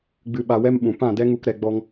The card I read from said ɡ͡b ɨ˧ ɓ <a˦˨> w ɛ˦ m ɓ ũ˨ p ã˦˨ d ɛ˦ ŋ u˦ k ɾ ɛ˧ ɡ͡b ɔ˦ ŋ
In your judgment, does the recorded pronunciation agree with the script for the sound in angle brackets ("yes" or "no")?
no